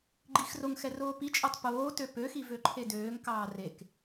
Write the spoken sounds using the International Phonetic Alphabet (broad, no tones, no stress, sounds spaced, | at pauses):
ɡ͡ǃ i x r o ŋ x ɛ r oː p i t͡ʃʼ ɔ tˤ p oː t ø p ø x i v ø ǃʰ e d øː ŋ k ɑː r e k